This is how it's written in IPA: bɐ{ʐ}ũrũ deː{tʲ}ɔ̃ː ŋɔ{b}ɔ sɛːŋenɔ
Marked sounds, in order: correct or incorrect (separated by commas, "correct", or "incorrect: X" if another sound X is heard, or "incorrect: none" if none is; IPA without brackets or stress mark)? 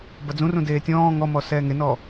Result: incorrect: d͡z, correct, incorrect: m